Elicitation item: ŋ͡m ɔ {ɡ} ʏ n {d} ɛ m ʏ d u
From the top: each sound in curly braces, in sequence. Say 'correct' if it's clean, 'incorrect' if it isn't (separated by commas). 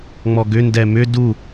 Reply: correct, correct